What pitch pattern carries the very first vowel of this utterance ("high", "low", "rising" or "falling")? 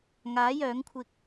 rising